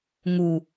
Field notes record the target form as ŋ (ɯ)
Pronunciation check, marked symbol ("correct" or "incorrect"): incorrect